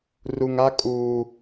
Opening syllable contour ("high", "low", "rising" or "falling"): low